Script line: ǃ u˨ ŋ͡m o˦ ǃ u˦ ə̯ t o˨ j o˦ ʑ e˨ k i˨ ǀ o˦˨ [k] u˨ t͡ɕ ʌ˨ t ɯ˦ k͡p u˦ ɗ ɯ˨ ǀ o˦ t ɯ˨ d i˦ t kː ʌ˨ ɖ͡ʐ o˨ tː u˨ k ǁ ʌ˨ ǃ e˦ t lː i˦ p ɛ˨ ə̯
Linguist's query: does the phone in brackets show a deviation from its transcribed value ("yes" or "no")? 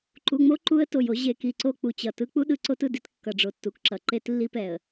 yes